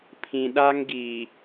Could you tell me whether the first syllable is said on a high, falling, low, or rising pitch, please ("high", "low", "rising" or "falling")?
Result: low